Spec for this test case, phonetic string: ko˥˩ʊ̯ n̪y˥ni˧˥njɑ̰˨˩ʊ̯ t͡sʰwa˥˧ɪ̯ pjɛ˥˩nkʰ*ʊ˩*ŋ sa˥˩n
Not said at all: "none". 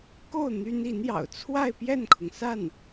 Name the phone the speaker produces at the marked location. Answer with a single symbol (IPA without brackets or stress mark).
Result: ʊ˩